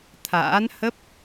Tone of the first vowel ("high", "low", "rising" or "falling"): rising